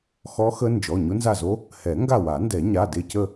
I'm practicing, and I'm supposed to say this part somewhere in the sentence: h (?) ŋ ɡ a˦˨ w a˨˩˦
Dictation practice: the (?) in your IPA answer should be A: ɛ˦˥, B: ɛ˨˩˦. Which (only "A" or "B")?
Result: B